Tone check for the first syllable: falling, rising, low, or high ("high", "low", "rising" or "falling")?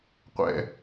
high